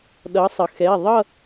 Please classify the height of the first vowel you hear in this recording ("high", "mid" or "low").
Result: mid